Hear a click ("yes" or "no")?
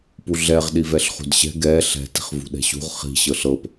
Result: no